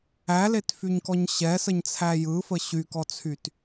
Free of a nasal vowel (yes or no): yes